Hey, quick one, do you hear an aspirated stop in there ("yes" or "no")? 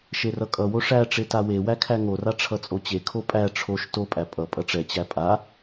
yes